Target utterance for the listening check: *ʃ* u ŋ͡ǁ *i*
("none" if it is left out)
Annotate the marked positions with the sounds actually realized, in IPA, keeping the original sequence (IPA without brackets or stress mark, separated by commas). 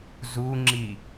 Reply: z, i